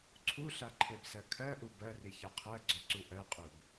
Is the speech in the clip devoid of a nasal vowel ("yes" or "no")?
yes